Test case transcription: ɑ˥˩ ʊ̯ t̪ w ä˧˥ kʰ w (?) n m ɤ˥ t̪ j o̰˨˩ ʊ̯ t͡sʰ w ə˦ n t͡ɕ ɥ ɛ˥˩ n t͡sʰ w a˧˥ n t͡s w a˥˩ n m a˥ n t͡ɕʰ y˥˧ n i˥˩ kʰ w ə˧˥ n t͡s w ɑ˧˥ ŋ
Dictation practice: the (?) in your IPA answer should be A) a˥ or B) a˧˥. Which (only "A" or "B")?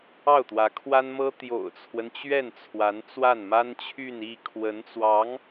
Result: A